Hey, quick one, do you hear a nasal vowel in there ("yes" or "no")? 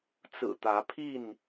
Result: no